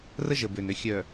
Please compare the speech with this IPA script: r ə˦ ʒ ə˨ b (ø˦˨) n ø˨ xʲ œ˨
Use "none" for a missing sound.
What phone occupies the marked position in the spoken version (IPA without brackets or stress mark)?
ø˨